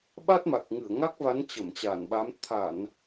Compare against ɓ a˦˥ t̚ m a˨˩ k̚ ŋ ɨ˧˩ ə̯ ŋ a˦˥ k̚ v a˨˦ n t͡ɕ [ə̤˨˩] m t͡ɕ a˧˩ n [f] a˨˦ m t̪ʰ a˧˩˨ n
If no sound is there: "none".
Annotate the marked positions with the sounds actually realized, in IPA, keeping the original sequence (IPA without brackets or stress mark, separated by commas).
ə˧˩, ɓ